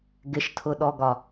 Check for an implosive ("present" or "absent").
present